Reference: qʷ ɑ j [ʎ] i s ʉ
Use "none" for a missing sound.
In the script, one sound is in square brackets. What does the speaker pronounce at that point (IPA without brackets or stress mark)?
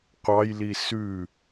l